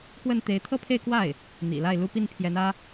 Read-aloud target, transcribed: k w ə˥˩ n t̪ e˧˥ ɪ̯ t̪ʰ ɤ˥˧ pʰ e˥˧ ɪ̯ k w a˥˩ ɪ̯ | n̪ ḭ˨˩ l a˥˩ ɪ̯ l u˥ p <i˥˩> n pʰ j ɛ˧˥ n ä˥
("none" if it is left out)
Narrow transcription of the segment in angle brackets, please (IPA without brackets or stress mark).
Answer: i˥˩